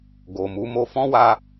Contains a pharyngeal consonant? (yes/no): no